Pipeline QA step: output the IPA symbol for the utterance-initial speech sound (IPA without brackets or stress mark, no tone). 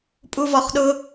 pʼ